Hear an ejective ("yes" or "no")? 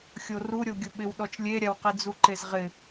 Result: no